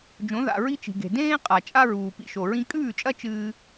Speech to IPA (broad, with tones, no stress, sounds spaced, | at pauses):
d͡ʒ õ˩˥ ð a̰˩ ɹ i˥ t͡ʃ i̤˩ ɡ e̤˩ d ẽː˥ qʼ a˩ t͡ʃʼ a˥ ɹ uː˩ p ḭ˧ ʃ o˩ ɹ ĩ˥ kʼ ʉː˥˩ t͡ʃʼ ɐ˥ t͡ʃ ɨː˥